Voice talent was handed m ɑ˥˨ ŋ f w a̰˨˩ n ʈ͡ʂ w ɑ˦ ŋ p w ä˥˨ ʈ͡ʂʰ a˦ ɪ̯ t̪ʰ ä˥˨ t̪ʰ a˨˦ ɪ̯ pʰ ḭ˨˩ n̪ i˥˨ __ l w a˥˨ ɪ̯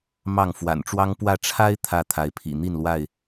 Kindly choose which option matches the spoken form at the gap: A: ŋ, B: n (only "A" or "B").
B